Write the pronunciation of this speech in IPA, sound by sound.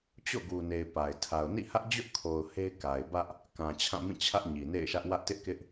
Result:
t͡ɕ o̰˦˨ ɡ u˨ n e˨ ɪ̯ p a˨ ɪ̯ tʰ a˨ ʊ̯ n ḭ˦˨ h ä˦ ʔ d͡ʑ ʊ˦ ʔ kʰ o˨ ʊ̯ h e˦ ɪ̯ k a˨ ɪ̯ b ä˦ ʔ | k ã˨ t͡ɕʰ ã˦˨ m ĩ˦˨ t͡ɕʰ ä˦ ʔ ɲ i˨ n ḛ˦˨ ɪ̯ ʃ ä˦ ʔ w ä˦ ʔ t ɪ˦ ʔ k ɪ˦ ʔ

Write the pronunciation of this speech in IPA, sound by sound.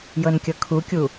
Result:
j ɤ n kʲ ɤ kʰ u kʲ u

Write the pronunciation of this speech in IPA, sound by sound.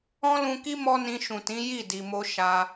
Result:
ɔ̃˦ l ũ˧ k i˦ m ɔ˦ n ĩ˧ ʃ ũ˨ t ĩ˨˦ j i˦˨ d i˨ m o˧ ʃ a˦

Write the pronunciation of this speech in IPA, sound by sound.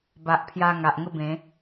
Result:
b a˨ ʔ pʰ j a˧ ŋ a˨ ʔ ŋ ə˦ b ẽ˨˦

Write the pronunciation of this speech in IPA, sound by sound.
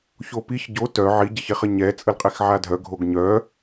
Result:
ç o p i ç ɟ o t œ ʕ i ɟ ɛ ç e χ ə ɲ ɛ t͡sʼ ə l qʼ e x ʕ a dʱ œ ɡʱ o ɡ ɲ œ

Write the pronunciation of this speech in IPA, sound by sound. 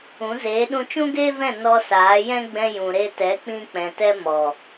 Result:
ũ˨˦ z eː˨˦ ɗ ũ˧ t͡ʃ ũ˦ ɡ eː˦ v ɛ̃˦˨ n ɔ˧ s aː˨˦ j ɛ̃˦ ɡ͡b ɛ̃˧ j ũ˨ ɾ e˧ t ɛ˨˦ k͡p ĩ˧ k͡p ɛ̃˨ t ɛ˧ m ɔ˨

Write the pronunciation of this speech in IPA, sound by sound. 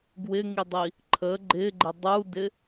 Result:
ɡ w ɪ ŋ i dˤ i | ǃʰ ə ɡ͡ǃ ɪ ɡ͡ǃ ɪ dˤ u d ɪ

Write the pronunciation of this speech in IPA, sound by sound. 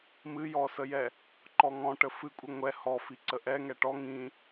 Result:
m ɨ j ɔ s ə j ɛ | ǃ ɔ ŋ ɔ̃ ʈ ə f ɨ kʷʼ ɨ ŋʷ ɛ h ɔ f i ǀ ə ʔ ɛ ŋ ɛ ʈ ɔ ŋ ĩ

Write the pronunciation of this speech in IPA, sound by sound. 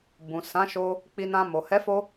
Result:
b ũ˨ s ã˨˦ ʃ o˧ | k͡p i˧ n ã˧ m o˨ h ɛ˨˦ f o˧

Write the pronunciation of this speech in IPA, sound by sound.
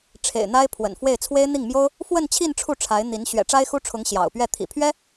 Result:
ʈ͡ʂʰ ḛ˨˩ ɪ̯ n̪ a˥ ɪ̯ pʰ w ə̰˨˩ n f w e˥˩ ɪ̯ t͡sʰ w e˥ ɪ̯ n̪ i˥˩ ŋ m j o˥ ʊ̯ | f w ə˥˧ n t͡ɕʰ i˥˧ n ʈ͡ʂʰ u˥˩ ʈ͡ʂʰ a˧˥ ɪ̯ n̪ i˧˥ n ɕ ɥ ɛ̰˨˩ ʈ͡ʂ a˥ ɪ̯ x u˥ ʈ͡ʂʰ ʊ˧˥ ŋ ɕ j ɑ̰˨˩ ʊ̯ p ɥ ɛ˥˩ t̪ʰ ḭ˨˩ pʰ ɥ ɛ˥

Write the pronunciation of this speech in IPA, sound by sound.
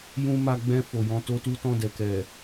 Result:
j ũ˧ m a˧ ɡ͡b ɛ̃˧ f o˨ j ɔ̃˧ t o˦ t u˦ t ɔ̃˦˨ d ɛ˨ k ɛ˨

